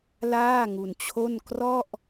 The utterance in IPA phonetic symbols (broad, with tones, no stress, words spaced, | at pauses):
laː˥˩ŋu˧nt͡ɕʰo˥˩n krɔ˥˩ʔ